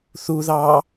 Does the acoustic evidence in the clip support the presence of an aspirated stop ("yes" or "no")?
no